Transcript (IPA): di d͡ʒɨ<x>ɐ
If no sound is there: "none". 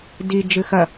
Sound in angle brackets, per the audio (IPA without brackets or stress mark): x